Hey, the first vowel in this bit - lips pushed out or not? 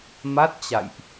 no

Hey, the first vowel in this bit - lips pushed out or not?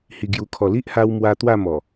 no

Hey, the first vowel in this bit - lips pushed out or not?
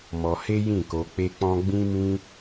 yes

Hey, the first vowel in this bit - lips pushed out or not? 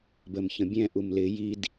no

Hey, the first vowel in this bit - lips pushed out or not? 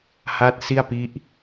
no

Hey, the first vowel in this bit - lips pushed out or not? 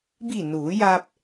no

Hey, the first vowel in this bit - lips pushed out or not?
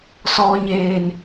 yes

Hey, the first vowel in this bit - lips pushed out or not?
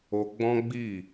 yes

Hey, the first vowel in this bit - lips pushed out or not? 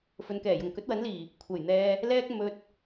yes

